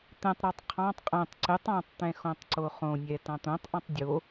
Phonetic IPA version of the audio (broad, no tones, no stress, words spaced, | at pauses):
t̪ɛ̃tˤɾɑtˤ qʰɑ̃tˤ qʼɛ̃tˤ ǀɘ tˤɑ̃tˤt̪ɛ̃ xõtˤǀoχõnʲɛ tɑ̃t̪õtˤʔɔ̃tˤ dʲo